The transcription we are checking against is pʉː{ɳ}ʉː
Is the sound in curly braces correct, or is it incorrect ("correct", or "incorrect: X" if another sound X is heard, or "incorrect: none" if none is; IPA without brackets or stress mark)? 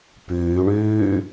correct